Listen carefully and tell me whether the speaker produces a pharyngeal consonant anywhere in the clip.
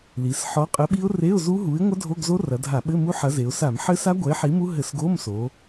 yes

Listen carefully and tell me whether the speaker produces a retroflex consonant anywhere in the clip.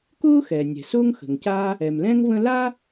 no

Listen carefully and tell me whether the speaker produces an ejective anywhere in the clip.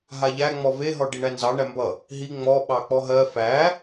no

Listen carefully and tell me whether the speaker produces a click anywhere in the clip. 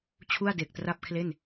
no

